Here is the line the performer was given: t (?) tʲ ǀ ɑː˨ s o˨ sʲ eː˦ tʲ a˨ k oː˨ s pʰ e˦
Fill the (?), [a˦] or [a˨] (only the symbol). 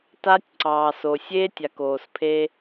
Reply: a˦